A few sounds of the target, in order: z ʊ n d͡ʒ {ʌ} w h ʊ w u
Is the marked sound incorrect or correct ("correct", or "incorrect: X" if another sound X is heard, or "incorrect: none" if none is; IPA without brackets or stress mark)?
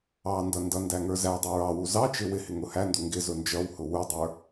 correct